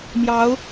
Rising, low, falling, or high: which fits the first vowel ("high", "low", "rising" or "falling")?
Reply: rising